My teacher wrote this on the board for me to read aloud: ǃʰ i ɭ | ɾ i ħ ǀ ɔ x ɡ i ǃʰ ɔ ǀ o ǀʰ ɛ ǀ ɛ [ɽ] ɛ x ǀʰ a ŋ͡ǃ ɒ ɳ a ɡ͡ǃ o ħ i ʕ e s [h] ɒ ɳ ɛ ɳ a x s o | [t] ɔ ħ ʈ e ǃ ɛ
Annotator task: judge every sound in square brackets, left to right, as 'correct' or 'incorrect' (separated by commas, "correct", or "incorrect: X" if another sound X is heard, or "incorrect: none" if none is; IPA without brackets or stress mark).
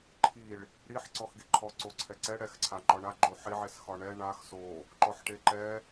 correct, incorrect: x, incorrect: ǃ